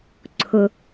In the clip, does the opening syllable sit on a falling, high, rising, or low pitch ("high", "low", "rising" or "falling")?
low